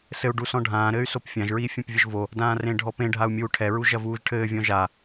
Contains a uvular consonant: no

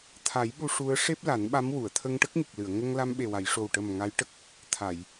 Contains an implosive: yes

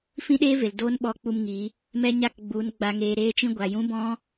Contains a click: no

